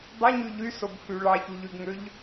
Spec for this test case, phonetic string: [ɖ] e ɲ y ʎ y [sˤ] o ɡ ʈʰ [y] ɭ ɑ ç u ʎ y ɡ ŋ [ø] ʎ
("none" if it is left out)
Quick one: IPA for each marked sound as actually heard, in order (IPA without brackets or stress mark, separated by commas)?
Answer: dˤ, s, y, ø